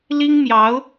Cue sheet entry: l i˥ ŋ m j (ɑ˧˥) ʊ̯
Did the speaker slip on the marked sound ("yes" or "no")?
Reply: no